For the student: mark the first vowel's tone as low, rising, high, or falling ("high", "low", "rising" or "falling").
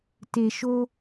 low